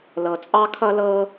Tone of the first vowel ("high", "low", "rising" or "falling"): low